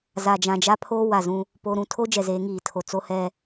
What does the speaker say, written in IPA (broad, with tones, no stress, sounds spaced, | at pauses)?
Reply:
z a˨ d͡ʒ ã˨ d͡ʒ a˦ pʰ oː˦ w a˨ z ũ˦ | p o˨ ɾ ũ˨ tʰ o˦ d͡ʒ ɛ˨ z eː˨˦ ŋ iː˨ tʰ o˨ t͡s o˦ h ɛ˦